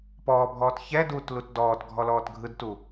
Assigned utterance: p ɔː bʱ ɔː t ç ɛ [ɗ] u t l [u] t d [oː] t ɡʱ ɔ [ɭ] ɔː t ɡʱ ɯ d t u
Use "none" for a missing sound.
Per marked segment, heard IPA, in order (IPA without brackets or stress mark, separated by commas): d, u, ɔː, l